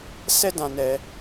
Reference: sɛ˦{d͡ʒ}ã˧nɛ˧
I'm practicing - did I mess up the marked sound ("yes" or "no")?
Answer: yes